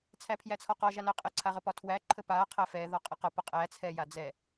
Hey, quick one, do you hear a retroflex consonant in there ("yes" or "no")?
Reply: no